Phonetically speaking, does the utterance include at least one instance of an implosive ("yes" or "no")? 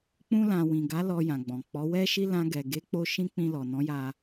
no